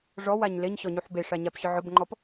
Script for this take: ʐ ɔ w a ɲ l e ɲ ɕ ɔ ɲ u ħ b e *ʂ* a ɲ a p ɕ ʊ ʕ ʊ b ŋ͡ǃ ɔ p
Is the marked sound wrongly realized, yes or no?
no